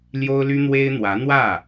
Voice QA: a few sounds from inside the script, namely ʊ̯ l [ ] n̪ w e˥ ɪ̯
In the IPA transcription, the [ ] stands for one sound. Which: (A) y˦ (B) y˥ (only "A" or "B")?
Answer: B